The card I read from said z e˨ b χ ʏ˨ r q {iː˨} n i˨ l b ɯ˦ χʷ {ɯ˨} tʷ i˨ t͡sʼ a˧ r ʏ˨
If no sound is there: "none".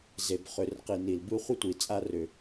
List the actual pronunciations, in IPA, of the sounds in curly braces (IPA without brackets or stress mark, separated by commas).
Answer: i˨, ɯ˦